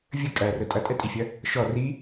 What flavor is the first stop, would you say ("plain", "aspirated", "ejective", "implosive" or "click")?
ejective